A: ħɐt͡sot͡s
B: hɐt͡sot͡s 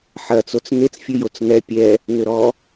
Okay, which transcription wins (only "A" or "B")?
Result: A